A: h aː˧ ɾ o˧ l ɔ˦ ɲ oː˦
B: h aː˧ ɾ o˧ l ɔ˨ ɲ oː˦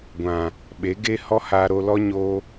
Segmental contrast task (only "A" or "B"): A